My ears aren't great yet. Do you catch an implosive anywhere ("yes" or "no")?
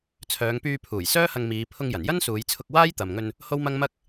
no